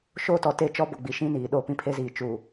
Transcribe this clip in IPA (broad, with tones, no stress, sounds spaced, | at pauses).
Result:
ʃ oː˦ t ɔ˨ t e˦˨ t͡ʃ ɔ˦ b ʊ˨ ɡ͡b i˨ ʃ ĩ˦ n iː˨ ɗ oː˦ p ĩ˦ pʰ e˦ z iː˨ t͡ʃ uː˨